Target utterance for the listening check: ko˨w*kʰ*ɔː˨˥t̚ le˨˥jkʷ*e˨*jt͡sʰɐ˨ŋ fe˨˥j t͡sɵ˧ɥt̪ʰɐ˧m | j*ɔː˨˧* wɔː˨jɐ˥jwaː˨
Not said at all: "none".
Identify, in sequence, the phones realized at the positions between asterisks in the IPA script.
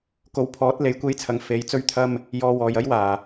pʰ, e˧, ɔː˧

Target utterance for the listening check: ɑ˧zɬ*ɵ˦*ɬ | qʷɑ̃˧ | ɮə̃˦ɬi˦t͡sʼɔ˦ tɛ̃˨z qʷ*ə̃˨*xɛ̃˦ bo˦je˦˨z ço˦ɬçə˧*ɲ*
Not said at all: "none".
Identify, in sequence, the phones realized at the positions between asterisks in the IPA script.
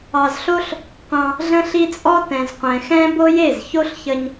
o˦, ɛ̃˨, ɲ

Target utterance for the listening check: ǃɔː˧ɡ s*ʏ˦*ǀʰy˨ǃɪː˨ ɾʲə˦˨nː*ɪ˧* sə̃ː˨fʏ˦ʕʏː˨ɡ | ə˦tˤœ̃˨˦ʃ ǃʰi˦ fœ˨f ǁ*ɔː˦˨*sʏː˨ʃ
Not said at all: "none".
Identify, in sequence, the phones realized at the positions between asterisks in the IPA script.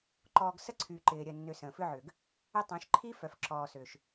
ə˦, ʏ˧, ɔː˨

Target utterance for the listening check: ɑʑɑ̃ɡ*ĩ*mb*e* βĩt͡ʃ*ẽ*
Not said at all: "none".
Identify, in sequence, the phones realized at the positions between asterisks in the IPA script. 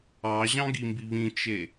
i, i, e

